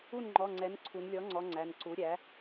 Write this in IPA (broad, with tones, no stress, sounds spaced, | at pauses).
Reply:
u˥˩ n ŋ͡ǃ ɔ˩˧˩ ŋ͡ǀ ɛ˩˥ n ǀʰ u˩˧ n lʲ ɔ˩˥ ŋ͡ǀ ɔ˩˧ ŋ͡ǀ æ˩˧˩ n ǀ u˩˥ ɾʲ æ˩˥